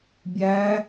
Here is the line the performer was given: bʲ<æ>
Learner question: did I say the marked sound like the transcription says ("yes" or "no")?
yes